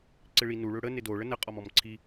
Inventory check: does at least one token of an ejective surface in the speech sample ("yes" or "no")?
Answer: yes